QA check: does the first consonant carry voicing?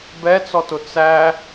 yes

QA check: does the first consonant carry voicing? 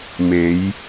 yes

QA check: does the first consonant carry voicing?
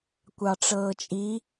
no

